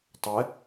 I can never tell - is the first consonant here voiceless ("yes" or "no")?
yes